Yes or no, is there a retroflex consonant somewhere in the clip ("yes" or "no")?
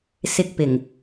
no